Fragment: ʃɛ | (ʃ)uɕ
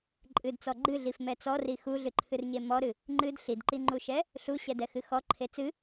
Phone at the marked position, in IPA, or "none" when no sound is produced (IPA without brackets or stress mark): ɬ